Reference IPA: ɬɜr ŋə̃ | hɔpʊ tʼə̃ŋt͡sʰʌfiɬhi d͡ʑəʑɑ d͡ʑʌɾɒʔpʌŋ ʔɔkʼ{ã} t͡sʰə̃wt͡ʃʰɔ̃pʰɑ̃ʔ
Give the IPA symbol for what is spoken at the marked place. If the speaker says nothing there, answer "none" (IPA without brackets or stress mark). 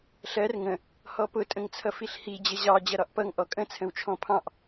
ə̃